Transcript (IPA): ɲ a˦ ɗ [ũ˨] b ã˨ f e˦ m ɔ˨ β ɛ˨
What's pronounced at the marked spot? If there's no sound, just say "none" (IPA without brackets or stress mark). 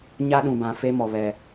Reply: ũ˨